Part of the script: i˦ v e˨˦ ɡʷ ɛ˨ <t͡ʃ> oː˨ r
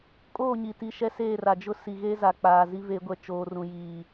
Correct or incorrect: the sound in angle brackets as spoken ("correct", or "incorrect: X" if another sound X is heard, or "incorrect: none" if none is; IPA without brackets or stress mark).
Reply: correct